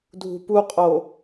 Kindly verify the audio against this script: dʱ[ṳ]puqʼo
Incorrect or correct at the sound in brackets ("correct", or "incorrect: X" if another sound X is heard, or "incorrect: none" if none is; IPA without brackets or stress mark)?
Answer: correct